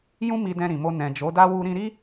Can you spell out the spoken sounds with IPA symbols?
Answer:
jũ˦mi˧ dɛ̃˧ɾĩ˨mo˧ nɛ̃˨d͡ʒo˨˦da˦ wu˦ ɾĩ˧ɾi˦

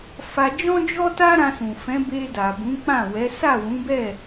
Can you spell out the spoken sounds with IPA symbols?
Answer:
fa˧d͡ʒɔ̃˦d͡ʒɔ˦ ta˦ɾã˧sũ˨ fɛ̃˨˦be˧ da˨bũ˨˦k͡pã˦˨wɛ˨˦ sa˦˨wũ˨˦bɛ˦˨

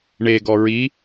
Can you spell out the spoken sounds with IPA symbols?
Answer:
ɳeɡɔ ɹi

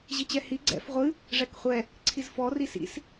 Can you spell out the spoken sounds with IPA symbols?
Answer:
ʑit͡ɕɛhi ɡ͡ǀɛ̰f ʁʷɨ | ʐɛkχʷɛ | ǀʰizfɔ risḭs

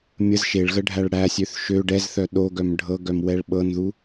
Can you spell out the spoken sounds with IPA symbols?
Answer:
mʲəz ʃeɭɣəɖʱæɭ ɽæsʲøθ ʃø ɖɛzθœ ɗoɡœm ɖʱɤɡœmwɛɭ ɓɤnðu

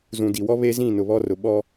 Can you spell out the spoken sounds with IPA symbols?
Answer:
zũ˨di˨wɔ˦ βe˦zĩ˦˨ nʊ˨βɔ˦rʊ˨ ɓɔ˦

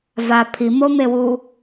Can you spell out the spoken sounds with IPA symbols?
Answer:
va pʰimomewu

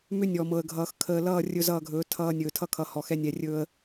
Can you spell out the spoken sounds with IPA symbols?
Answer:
mʏ˦ nʲɔ˨mɤ˨ə̯ɡʱʌː˨x kʰəː˨lʌː˦˨ rʲɵ˦˨zʌː˦˨ɡʱɵː˨˦ tʰʌː˦nʲɵː˨ tʰʌ˦kʰʌ˨ hɔ˨xɛ˦nʲɛ˨rʲɵː˦ə̯

